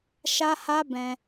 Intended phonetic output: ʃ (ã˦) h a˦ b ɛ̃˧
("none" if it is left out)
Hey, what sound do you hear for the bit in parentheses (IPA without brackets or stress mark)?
a˦